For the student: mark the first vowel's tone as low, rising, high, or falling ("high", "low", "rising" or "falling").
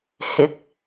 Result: rising